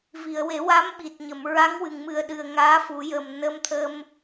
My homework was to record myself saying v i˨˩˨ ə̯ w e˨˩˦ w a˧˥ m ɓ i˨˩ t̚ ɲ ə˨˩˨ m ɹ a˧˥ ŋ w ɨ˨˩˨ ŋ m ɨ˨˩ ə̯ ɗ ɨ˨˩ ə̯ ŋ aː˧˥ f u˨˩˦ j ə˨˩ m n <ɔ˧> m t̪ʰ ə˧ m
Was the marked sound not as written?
yes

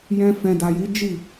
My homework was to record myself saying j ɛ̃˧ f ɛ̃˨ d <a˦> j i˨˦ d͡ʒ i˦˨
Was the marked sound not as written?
yes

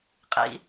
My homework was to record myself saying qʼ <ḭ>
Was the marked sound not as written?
no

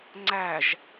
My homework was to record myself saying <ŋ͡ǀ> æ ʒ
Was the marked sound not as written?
no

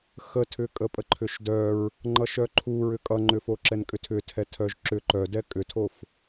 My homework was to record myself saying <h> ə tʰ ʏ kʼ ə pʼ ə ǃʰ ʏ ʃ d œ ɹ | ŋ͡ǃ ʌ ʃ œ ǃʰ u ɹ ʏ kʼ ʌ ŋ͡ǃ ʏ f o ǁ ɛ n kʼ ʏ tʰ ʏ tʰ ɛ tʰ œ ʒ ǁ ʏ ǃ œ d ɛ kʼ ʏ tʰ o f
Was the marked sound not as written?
yes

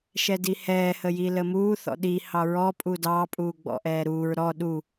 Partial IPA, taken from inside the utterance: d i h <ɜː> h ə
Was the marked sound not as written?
yes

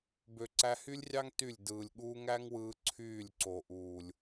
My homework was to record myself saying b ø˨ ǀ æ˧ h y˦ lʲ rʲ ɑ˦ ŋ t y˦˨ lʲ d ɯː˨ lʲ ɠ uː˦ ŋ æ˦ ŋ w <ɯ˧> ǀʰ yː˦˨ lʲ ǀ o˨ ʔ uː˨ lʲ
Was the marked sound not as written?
no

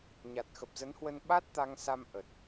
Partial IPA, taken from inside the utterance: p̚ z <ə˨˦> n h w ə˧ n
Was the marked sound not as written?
no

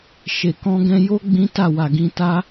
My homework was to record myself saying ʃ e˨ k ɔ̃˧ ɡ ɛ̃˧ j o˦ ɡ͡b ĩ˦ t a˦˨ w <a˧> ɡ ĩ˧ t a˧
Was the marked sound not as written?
yes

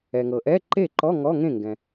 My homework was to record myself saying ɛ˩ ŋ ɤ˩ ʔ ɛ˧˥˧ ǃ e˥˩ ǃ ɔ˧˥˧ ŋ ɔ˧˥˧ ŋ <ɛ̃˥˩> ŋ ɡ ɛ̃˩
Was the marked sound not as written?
yes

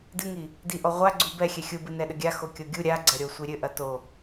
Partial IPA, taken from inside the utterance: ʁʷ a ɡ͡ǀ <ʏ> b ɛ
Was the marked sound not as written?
yes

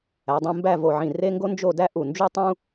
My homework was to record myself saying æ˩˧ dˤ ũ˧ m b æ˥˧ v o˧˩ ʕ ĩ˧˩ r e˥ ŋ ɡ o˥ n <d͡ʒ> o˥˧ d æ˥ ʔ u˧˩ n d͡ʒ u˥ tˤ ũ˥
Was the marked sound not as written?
no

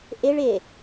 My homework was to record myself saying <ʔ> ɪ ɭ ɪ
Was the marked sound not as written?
no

